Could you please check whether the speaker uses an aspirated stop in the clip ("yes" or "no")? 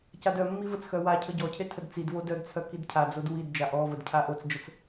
yes